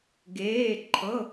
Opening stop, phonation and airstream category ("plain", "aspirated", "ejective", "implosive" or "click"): plain